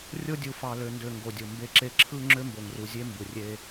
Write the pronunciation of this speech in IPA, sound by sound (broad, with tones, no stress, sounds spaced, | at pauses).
rʲ o˦ dʲ u˨ f ɑ˨ l ø˨ n d ø˨ ŋ ɡ o˨ dʲ o˨ m b e˦ ǁ e˦ ǁʰ ɯ˦ ŋ͡ǁ ø˦ m b o˨ ŋ r u˨ zʲ e˦ m b ɯ˨ rʲ e˦